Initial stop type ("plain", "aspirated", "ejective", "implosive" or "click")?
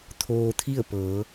aspirated